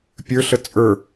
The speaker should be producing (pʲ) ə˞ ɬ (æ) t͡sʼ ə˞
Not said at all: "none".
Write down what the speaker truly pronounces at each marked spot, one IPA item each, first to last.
pʲ, ə

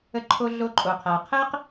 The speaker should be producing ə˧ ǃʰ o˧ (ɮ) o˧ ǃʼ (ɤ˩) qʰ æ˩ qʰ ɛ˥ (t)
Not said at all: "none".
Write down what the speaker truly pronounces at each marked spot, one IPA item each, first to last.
ɮ, o˩, q

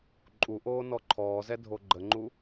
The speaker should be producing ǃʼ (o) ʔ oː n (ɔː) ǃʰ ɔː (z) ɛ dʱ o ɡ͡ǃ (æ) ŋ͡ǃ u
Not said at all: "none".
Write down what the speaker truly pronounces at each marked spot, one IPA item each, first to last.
u, ɔ, z, ə

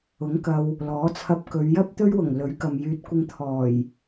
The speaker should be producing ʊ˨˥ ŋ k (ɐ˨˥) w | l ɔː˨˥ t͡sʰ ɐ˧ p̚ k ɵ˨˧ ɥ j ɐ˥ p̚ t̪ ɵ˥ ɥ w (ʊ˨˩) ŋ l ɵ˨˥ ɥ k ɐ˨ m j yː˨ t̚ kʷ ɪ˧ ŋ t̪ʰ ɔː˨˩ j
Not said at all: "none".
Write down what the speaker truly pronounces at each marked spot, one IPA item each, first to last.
ɐ˧, ʊ˨˩

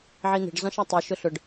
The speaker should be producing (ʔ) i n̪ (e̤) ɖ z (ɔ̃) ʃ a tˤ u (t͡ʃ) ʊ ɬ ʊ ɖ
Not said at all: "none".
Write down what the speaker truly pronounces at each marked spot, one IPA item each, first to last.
ʕ, e̤, ɔ̃, ʃ

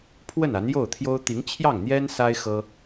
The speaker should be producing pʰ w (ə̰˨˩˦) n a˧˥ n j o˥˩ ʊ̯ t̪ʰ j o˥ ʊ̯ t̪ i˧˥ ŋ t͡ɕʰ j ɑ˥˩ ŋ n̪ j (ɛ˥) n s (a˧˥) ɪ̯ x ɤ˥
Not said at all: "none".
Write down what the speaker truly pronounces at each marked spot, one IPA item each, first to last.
ə˥˩, ɛ˥, a˥

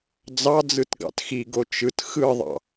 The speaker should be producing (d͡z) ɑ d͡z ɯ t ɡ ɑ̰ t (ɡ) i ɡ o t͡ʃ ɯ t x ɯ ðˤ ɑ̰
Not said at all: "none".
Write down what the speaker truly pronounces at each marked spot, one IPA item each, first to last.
d͡z, x

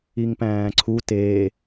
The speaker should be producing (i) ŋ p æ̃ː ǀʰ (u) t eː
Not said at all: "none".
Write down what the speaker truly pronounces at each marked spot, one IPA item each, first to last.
i, u

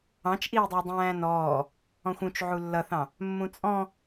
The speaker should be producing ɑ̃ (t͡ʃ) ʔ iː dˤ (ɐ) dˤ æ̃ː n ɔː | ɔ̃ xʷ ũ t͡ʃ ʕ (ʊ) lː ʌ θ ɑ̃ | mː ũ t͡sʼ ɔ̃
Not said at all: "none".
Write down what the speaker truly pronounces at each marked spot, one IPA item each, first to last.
t͡ʃ, æ, u

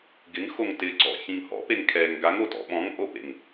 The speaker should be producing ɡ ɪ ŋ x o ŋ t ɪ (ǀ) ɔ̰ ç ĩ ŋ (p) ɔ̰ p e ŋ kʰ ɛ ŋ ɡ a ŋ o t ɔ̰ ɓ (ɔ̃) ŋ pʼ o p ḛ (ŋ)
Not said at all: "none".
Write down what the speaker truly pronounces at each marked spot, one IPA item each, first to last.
ǀ, h, ɔ̃, ŋ

